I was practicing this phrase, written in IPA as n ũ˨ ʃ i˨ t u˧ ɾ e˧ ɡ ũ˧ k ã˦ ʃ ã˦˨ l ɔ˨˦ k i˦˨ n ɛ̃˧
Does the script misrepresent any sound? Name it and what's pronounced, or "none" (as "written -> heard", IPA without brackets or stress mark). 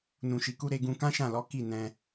t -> k